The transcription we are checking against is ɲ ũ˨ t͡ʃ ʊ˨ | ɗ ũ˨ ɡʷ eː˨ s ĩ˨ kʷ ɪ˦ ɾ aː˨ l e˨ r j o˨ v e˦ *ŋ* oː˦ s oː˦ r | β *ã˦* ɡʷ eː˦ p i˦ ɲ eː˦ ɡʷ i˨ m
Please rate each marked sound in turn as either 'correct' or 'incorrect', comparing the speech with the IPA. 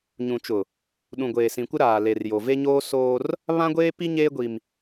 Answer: incorrect: ɲ, correct

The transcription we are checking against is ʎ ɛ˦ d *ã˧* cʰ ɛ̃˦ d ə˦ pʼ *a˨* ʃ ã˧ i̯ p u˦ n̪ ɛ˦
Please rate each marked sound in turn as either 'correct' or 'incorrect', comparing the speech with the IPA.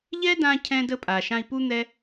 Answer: correct, correct

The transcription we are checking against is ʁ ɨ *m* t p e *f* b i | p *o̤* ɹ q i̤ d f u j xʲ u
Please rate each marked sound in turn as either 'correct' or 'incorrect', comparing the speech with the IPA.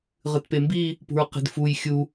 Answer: incorrect: none, incorrect: m, incorrect: ṳ

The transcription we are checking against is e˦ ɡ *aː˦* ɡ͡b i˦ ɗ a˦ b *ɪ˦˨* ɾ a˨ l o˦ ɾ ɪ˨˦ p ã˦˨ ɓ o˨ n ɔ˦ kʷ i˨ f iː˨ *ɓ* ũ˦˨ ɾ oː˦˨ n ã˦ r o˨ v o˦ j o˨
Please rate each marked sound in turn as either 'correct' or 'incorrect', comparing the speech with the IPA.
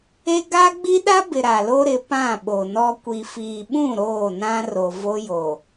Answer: incorrect: a˦, incorrect: ɪ˨, correct

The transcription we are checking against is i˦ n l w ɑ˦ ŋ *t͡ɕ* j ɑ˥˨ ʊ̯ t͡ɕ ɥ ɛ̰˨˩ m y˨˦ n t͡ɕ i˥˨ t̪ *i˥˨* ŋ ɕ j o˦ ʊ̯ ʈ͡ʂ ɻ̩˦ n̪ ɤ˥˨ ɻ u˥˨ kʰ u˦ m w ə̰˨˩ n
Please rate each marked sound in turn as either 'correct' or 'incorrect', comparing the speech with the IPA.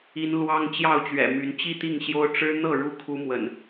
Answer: correct, correct

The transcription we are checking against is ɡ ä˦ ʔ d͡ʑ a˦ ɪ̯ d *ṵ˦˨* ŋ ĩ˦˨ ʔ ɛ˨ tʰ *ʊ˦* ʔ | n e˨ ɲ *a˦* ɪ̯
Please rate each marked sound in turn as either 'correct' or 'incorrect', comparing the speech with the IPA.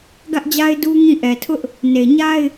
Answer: incorrect: u˦, correct, correct

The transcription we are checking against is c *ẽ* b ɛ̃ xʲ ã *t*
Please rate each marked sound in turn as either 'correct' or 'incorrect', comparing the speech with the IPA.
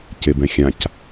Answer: incorrect: e, incorrect: c

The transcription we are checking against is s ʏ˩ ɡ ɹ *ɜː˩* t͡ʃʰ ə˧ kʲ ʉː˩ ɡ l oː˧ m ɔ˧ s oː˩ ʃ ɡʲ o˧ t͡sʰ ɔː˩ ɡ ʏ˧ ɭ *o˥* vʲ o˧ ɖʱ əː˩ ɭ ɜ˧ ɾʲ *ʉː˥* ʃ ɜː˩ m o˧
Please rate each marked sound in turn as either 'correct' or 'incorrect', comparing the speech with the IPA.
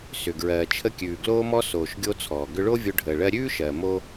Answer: correct, correct, correct

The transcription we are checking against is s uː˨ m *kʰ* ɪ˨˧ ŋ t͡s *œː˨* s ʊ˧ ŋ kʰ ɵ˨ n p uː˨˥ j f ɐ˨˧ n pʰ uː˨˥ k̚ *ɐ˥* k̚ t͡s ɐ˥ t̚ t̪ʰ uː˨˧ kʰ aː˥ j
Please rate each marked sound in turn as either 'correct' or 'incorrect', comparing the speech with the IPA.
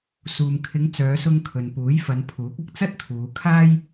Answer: correct, incorrect: œː˨˧, incorrect: ɐ˧

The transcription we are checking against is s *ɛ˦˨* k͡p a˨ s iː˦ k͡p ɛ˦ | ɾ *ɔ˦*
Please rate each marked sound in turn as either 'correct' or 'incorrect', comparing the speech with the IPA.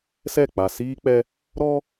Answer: correct, correct

